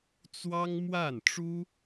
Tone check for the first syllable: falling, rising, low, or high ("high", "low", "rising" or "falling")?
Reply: high